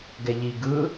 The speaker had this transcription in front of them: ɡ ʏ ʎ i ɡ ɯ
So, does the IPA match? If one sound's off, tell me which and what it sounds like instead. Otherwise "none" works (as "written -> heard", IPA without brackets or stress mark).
ʏ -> ɛ